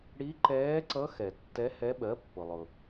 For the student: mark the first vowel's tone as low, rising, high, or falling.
rising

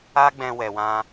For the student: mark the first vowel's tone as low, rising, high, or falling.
high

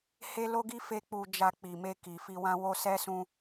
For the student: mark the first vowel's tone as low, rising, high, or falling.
high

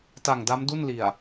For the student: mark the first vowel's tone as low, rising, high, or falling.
low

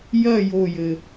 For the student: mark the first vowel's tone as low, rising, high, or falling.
falling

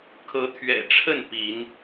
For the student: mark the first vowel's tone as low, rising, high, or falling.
rising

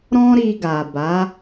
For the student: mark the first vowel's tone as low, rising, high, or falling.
high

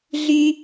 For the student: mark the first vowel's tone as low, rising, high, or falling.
high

